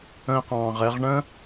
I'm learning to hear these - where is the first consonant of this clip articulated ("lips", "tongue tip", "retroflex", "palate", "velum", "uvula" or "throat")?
uvula